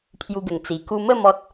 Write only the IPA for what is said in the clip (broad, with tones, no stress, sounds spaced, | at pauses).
pʰ j u˧ ɡ ə˨˩ ŋ t͡s i˨˩ k u˧ m ə˥˧ m ɔ˦ t̚